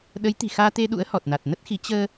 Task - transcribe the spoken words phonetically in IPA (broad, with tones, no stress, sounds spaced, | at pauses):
ɗ ə˨˦ j t̪ i̤˨˩ x aː˧ t̪ e˧ ɗ ṵ˧˥ ə̯ h ɔ˨˩ t̚ n a˨˩ t̚ n ə˦˥ t̚ x i˨˦ t͡ɕ əː˧